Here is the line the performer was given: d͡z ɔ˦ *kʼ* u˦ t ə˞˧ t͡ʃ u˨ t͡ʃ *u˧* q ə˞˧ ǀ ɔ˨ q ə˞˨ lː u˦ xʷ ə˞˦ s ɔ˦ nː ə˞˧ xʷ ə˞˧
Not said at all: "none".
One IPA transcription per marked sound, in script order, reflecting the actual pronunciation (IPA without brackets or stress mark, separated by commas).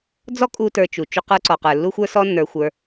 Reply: kʼ, u˧